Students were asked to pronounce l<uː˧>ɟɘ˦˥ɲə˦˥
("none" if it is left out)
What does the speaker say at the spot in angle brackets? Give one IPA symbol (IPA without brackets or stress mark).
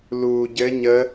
uː˧